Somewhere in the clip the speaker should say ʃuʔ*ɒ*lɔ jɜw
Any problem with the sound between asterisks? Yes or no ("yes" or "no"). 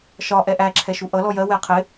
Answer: yes